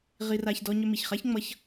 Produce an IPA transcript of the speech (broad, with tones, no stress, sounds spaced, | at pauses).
ʁ i˧ r a˧ ç d ɔ˧ ɲ ʏ˧ m i˨ ç χ a˦ ç ŋ͡m ʌ˧ ç